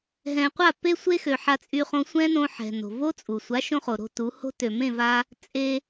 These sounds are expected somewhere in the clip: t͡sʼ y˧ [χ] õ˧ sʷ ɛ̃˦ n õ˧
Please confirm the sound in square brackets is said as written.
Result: yes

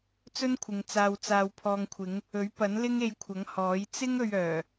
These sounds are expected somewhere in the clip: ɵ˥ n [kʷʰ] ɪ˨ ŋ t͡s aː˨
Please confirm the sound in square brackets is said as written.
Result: yes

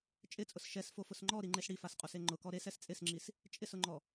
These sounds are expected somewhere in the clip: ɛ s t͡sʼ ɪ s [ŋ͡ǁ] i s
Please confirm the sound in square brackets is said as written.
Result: yes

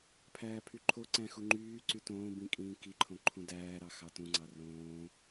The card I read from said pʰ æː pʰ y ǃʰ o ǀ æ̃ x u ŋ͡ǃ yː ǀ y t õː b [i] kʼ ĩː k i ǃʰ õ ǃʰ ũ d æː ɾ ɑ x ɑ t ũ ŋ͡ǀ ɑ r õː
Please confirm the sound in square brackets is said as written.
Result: no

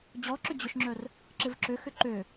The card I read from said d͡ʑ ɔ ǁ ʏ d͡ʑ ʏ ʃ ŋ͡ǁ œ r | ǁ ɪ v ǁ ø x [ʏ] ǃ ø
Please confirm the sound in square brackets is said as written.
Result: yes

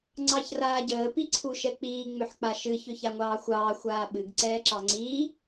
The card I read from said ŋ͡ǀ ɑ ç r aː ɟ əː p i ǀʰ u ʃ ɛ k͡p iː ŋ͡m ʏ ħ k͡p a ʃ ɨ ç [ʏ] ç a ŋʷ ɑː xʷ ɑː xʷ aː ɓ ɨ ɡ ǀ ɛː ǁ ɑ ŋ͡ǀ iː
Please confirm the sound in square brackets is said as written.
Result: yes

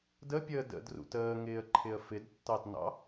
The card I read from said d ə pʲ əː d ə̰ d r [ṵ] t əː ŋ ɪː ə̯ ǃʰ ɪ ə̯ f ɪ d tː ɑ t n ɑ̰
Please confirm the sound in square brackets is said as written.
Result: yes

